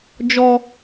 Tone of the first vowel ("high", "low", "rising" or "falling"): high